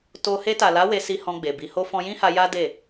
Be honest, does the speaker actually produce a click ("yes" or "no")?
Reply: no